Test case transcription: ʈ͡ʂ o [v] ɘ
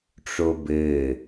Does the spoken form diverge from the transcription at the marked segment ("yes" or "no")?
yes